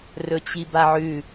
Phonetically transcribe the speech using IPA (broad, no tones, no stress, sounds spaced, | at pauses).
r ɵ t͡ɕ i b a ʕ ʉ